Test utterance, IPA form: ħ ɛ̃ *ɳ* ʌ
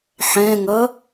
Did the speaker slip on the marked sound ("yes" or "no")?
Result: yes